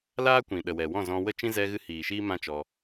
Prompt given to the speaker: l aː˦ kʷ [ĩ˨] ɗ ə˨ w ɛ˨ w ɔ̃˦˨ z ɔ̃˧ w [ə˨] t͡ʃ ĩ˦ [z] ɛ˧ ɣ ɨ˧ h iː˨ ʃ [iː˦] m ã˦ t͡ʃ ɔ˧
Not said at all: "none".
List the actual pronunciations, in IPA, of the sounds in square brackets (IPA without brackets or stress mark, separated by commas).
ĩ˨, ə˦, z, iː˦